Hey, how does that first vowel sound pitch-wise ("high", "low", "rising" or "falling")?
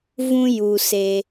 high